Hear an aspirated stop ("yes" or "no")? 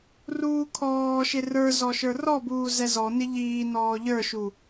yes